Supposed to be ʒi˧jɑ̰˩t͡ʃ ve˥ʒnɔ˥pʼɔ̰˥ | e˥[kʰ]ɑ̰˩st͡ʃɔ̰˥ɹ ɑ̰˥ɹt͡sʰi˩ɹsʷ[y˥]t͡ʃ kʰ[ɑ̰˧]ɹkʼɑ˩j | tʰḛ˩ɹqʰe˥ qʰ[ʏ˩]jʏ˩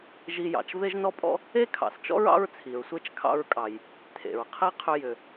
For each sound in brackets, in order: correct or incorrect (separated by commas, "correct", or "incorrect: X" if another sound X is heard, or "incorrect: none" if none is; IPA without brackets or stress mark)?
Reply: correct, incorrect: e˥, correct, incorrect: ʏ˧